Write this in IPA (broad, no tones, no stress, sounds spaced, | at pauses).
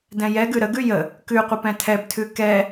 d ɛ̃ j ɛ ɡ ʉ ɾ ə ɡ ʉ j ə | k ʉ qʷ ə p ɛ̃ tʰ ɛ b tʰ ʉ k ɛ